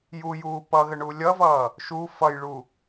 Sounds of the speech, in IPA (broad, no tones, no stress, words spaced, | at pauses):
jujuː pʌɣəɳu lʲʌvʌː | ʃu fʌjɭu